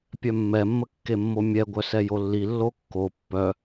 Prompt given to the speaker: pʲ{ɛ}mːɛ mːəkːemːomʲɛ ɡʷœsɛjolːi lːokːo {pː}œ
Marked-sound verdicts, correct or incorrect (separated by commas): incorrect, correct